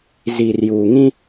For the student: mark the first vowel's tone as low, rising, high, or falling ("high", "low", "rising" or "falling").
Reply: low